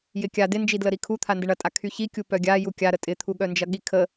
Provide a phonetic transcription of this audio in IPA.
j ɪ kʲ a d ɪ n d͡ʒ i d l ə ɾ i kʰ u t̪ʰ a n d ɪ ɳ ɐ tʼ a kʰ y ç i kʲ u p œ ɡʲ a j u kʲ a ɾ ə tʼ ɪ t̪ʰ u ɠ œ n d͡ʒ ɐ ɠ i kʰ ə

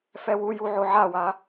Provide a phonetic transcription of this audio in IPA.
f ɛ w u j u ʕ o ʕ a w a

